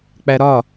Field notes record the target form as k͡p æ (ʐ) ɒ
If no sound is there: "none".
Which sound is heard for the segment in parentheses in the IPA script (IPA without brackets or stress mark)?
ɾ